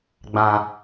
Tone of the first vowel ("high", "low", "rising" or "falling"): low